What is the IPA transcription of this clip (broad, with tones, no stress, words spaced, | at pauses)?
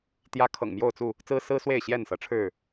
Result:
t̪jä˦ kʰɤ̰˨˩ŋmjo˥˨ʊ̯t͡su˥˨ | t͡sɹ̩˦sɹ̩˦swe˥˨ɪ̯ ɕjɛ˥˨nsɤ˨˦ʈ͡ʂʰɻ̩˥˨